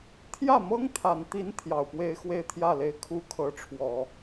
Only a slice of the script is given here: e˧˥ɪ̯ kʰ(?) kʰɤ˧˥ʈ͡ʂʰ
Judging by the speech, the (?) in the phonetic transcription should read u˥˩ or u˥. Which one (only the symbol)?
u˥˩